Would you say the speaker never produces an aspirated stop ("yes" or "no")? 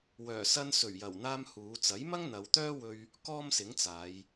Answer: yes